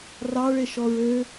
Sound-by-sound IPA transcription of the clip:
r ɑ ɭ e ʃ ɔ ɹ ø

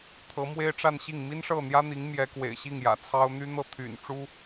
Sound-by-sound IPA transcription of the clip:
t̪ʰ ɤ˧˥ m w e˥ ɪ̯ ʈ͡ʂ a˥˧ n ɕ i˥˩ ŋ m i˥ n ʂ ɤ˥˩ n̪ j ä˥ n̪ i˧˥ ŋ m j ɛ˧˥ k w ḛ˨˩ ɪ̯ ɕ i˥˩ ŋ j ä̰˨˩ t͡sʰ ɑ˥ ʊ̯ n̪ y˥ n̪ ɤ˥˩ t̪ʰ y̰˨˩ n ʈ͡ʂ u˥

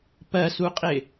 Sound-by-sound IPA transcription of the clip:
p ɜ s u qʼ ɪ

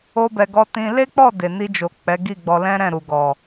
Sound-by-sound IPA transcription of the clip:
o˧ b ɛ˨ ɡ ɔ˧ t ĩ˧ l e˦ k͡p ɔ˦˨ d e˨ n i˧ d͡ʒ o˨ k͡p ɛ˨˦ ɡ i˦˨ ɡ͡b ɔ˧ l ɛ̃˦ ɾ ɛ̃˦˨ ɾ u˨ ɡ ɔ˨

